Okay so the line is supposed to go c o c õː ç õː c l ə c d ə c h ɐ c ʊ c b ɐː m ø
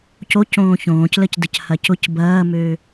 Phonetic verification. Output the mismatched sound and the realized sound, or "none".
none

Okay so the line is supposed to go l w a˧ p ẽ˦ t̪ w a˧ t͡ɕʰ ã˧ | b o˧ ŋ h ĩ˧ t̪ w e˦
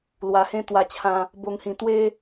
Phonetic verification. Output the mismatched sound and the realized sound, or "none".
p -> h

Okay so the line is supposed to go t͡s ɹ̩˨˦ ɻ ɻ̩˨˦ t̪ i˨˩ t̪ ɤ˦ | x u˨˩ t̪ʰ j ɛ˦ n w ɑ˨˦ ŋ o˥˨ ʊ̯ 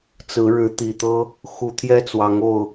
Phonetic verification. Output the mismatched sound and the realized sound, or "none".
n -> t͡s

